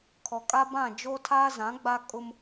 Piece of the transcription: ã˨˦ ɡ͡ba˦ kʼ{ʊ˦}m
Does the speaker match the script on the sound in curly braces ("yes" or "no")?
yes